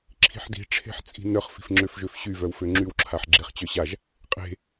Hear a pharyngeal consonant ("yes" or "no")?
yes